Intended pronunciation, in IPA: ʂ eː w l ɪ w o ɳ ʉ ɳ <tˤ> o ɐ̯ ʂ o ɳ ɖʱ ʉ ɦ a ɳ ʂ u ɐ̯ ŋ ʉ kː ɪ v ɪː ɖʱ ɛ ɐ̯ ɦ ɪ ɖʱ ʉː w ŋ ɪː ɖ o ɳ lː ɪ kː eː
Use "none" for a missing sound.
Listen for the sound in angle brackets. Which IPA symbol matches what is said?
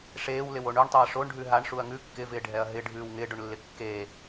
tˤ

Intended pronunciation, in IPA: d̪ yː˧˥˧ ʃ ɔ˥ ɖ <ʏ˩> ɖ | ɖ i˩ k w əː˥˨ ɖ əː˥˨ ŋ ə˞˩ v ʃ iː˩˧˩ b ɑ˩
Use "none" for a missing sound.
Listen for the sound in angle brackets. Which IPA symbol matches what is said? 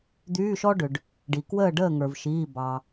ʏ˩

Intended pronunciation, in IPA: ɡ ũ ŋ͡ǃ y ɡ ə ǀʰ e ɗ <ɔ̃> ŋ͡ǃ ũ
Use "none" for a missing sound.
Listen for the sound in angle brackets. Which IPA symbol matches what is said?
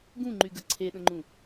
ə̃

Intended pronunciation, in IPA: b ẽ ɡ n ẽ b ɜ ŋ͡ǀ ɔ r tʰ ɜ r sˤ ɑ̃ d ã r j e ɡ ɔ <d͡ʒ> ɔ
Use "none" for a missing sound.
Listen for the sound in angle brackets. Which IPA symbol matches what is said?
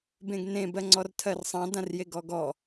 ɡ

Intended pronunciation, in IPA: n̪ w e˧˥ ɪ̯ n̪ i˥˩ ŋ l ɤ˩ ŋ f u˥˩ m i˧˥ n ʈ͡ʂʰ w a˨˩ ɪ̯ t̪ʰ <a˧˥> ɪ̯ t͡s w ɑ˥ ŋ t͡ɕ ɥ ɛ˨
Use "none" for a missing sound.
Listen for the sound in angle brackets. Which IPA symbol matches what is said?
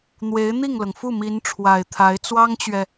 a˧˥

